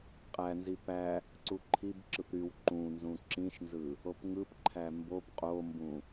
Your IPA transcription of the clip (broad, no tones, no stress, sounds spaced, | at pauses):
qʼ æ n z i p æ | ǀ u ǃʰ i b ǁ ɯ p ɾ y w ǃ ũ n z ũ ǁ ĩ ʃ n z ɯ | o p ŋ ɯ p ǃʰ æ m b o b qʼ o m b ũ